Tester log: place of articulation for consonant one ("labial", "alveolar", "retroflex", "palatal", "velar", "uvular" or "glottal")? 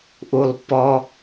glottal